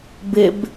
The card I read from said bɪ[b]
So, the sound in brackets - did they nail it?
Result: yes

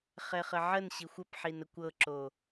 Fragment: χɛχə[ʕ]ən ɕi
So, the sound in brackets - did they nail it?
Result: yes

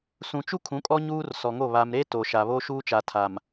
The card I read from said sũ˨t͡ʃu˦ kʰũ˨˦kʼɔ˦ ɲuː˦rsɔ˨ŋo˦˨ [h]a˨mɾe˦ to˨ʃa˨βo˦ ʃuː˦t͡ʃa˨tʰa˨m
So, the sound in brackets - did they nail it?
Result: no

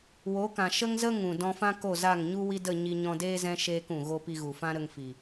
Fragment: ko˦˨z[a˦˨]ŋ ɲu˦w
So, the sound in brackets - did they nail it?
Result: yes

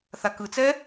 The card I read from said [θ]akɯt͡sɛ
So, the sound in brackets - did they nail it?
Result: yes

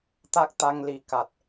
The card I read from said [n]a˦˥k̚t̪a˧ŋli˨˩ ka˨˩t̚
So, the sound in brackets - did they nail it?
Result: no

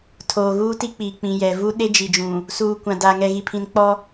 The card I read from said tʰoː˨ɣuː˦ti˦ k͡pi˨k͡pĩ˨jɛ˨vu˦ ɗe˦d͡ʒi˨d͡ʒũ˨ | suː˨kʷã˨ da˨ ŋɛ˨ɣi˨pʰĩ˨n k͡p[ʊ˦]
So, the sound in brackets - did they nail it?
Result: no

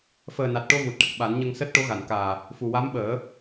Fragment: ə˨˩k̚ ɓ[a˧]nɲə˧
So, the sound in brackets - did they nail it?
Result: no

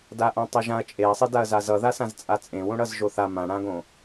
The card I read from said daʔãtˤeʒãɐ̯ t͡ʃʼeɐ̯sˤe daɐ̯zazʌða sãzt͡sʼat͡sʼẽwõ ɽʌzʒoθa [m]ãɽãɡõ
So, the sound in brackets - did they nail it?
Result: yes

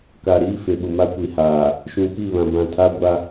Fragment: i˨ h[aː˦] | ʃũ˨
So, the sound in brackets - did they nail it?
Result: no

